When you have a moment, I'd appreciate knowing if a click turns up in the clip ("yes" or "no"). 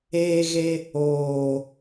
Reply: no